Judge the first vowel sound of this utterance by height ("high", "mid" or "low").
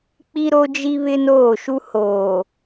high